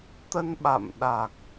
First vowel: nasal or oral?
oral